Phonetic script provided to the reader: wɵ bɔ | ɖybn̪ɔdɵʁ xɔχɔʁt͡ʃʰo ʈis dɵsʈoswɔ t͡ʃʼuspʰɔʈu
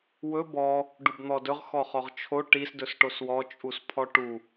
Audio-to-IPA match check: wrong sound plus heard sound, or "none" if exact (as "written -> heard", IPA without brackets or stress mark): y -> u